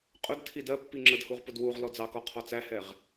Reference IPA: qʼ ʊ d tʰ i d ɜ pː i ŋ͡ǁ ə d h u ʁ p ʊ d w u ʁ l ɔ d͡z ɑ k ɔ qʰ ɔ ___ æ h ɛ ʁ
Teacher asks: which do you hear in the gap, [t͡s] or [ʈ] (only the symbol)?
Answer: t͡s